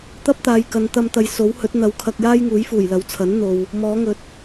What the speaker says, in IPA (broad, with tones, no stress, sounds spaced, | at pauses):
t̪ ɐ˥ p̚ t̪ aː˨ j k ɐ˨˧ n t̪ ɐ˧ m t̪ ɐ˨˧ j s o˨˥ w h ɵ˨˥ t̚ n̪ ɐ˨˧ w kʰ ɐ˧ k̚ j aː˥ j ŋ uː˨˥ j f uː˨˩ j l ɐ˨˥ w t͡sʰ ɐ˨˥ n n̪ o˨ w | m ɔː˨˥ ŋ ɵ˨ t̚